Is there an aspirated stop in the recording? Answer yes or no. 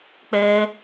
no